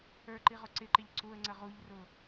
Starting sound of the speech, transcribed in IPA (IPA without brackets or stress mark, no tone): ə˞